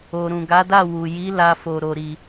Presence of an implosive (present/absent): absent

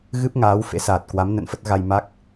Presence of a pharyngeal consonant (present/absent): absent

